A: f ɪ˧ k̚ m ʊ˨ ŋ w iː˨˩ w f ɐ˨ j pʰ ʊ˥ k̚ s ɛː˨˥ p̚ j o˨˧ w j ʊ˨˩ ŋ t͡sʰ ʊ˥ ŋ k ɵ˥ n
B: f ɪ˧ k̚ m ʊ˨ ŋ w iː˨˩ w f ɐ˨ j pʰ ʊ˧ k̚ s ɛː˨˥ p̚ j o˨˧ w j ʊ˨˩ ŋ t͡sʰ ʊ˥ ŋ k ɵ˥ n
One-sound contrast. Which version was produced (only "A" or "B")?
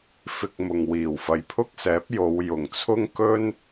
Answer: A